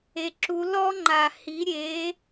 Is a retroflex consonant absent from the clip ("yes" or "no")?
yes